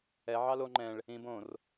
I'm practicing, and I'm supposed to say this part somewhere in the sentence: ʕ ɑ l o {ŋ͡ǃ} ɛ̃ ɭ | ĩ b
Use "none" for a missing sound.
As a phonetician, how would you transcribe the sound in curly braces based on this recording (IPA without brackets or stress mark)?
ŋ͡ǃ